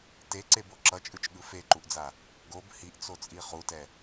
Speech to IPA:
t e ǀ e b o ǁ ʌ t͡ʃʼ ɯ t͡ʃ ɠ ɯ f e ǃ u ʔ d͡z a | ɡ o b h i ʔ t͡s o t͡sʼ i χ u t ɛ

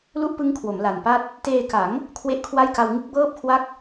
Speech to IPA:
l u˥˩ ʔ p ɯ˦˥ ŋ kʰ w o˩˦ m l a˨˩ n p a˥˩ t̚ | t eː˧ k a˩˦ ŋ | kʰ w e˥˩ ʔ kʰ w a˥˩ j k a˧ w ŋ ɯ˦˥ k̚ b ɤː˥˩ p̚ kʰ w a˥˩ k̚

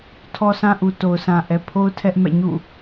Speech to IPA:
tʰ ɔ˦ sʰ ã˦ ʔ u˨ t o˨ ʊ̯ sʰ ã˨ ʔ ɛ˨ pʰ o˦ ʊ̯ tʰ ɛ˦ ʔ m ɛ̰˦˨ ɲ ṵ˦˨

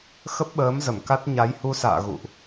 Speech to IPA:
x ə˦˥ p̚ ɓ əː˨˦ m z ə˧˩ m k a˦˥ t̚ ɲ a˨˦ j h u˧ s a̰ː˧˨ ɣ ṵ˧˨ ʔ

